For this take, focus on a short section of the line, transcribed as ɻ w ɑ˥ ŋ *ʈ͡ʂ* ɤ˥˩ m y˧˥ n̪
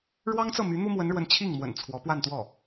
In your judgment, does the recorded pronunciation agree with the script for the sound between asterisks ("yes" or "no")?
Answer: no